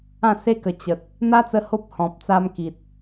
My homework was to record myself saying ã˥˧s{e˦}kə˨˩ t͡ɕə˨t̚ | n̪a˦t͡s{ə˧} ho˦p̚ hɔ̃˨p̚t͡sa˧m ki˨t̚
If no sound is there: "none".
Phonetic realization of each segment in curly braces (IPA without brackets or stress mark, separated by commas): e˦, ə˧